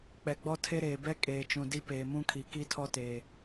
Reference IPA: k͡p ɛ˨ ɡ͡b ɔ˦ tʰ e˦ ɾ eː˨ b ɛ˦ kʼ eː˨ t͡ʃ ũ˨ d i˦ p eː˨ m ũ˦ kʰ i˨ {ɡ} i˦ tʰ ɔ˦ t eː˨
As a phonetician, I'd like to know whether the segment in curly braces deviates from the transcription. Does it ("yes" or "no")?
yes